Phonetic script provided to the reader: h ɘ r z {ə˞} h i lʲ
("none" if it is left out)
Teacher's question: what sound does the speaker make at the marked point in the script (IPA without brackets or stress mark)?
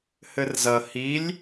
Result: ɐ